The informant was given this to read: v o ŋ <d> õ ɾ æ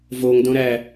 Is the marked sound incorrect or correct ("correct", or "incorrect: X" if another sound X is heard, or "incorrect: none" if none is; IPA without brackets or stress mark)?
correct